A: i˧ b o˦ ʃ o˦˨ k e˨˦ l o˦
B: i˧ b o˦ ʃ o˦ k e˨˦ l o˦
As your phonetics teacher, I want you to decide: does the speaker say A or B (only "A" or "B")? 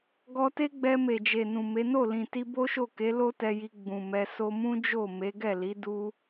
A